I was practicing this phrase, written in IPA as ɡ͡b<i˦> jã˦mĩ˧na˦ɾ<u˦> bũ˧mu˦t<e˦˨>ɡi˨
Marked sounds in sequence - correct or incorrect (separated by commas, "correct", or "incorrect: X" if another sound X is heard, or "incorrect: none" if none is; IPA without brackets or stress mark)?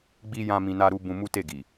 correct, correct, correct